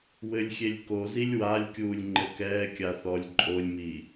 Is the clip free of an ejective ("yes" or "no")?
no